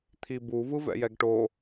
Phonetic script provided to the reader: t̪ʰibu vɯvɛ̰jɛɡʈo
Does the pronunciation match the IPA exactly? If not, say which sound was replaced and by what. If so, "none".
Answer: none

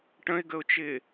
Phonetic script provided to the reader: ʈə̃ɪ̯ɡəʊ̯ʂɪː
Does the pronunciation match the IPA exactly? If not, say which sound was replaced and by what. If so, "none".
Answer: ʂ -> t͡ʃ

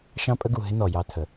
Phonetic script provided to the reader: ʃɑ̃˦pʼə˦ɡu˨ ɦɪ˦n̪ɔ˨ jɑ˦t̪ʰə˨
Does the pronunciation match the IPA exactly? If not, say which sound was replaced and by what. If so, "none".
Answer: none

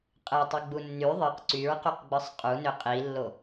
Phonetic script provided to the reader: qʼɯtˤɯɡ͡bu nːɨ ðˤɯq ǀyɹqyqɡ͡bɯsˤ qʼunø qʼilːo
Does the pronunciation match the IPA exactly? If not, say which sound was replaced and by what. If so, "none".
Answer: ɨ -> y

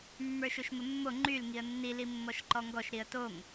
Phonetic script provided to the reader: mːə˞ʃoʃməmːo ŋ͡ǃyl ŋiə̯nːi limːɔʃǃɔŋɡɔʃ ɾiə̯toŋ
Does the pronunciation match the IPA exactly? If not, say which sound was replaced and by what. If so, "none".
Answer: none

